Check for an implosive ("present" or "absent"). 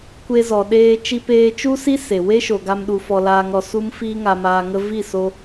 present